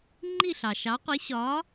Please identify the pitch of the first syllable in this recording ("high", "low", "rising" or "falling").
falling